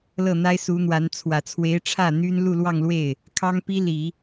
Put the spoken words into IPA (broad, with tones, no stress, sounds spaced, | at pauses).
l ɤ˥˩ n̪ a˥ ɪ̯ s u˧˥ n̪ w a˧˥ n t͡sʰ w ä˨˩ t͡sʰ w e˧˥ ɪ̯ ʈ͡ʂʰ ä˥˩ n̪ y˥ n l u˥˧ l w ɑ˥˧ ŋ l w e˥˩ ɪ̯ | kʰ ɑ˥ ŋ p i˥ l i˨˩˦